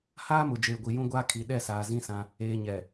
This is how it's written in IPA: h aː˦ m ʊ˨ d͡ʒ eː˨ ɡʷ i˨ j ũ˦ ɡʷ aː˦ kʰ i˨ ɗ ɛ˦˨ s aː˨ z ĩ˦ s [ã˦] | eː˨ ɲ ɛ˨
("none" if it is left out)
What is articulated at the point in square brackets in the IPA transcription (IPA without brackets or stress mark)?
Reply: ã˦